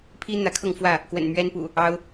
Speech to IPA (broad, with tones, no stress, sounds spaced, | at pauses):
pʰ i˦ n̪ ä˨˦ kʰ ɤ˥˨ ŋ f w ä˥˨ | k w ə̰˨˩ n m ɥ ɛ˦ n p ṵ˨˩ | ɑ˦ ʊ̯